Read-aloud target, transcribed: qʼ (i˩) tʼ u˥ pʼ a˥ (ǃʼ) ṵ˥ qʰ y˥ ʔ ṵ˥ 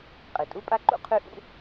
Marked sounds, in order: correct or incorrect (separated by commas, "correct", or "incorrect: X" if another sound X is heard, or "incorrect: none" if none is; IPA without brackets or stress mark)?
correct, incorrect: ǃ